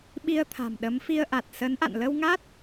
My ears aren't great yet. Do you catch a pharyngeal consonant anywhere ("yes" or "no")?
no